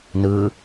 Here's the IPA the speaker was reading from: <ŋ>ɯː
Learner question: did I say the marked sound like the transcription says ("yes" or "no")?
no